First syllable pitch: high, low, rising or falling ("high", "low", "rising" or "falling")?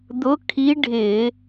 rising